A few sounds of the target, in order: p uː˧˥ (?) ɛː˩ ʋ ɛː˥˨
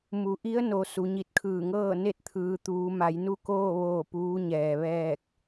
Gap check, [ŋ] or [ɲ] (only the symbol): ɲ